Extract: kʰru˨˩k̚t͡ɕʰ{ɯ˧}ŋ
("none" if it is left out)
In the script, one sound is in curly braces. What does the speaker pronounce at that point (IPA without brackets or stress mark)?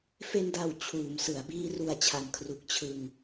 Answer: ɯ˧